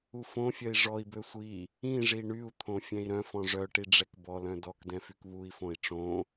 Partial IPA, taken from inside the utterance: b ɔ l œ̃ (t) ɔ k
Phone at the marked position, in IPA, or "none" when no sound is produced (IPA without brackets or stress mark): d